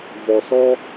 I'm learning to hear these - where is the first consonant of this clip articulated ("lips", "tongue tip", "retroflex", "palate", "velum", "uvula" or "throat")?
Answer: lips